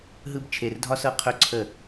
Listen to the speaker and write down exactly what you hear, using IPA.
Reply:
ɦ ɯ˦ b t͡ʃʰ e˧ r dʱ ɒ˦ s ɤ˦ qʰ ɵ˦ ǀʰ ə˦˨

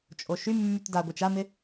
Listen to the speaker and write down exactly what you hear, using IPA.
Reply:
t͡ʃʼ o ʃ y mː y t d a ɡʷ i t͡ʃ a m ɪ

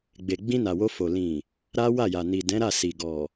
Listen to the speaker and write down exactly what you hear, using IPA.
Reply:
ɡ͡b e˨ ɡ͡b ĩ˧ n a˨ w o˧ f o˨ l ĩ˨ | ɾ a˦ w a˦˨ j a˨ n i˨ d ɛ̃˨˦ ɾ a˦˨ s i˨ ɡ ɔ˨

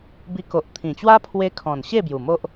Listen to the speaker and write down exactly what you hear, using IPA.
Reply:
b i˧ k o˨ ʔ t̪ʰ ĩ˨˩ t͡ɕ w a˦ pʰ w e˧ kʰ ɔ̃˨˩ n ɕ e˥˧ b j u˨˩ m o˦ ʔ

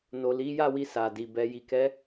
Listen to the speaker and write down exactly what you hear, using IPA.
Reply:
n o˨ l i˨˦ j a˦˨ w i˧ s a˨ d i˨ b ɛ˨ j i˨ k ɛ˨˦

